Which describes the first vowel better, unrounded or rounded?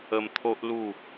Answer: unrounded